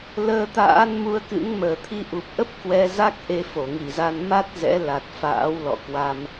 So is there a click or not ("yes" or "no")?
no